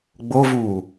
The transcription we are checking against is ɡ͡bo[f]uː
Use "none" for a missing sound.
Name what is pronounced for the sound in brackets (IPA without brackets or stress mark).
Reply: v